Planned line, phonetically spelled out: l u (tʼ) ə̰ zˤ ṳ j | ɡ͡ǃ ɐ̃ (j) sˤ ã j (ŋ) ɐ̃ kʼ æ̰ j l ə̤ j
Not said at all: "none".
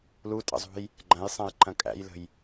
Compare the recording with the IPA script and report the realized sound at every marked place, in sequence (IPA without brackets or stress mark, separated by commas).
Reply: tʼ, j, ǃ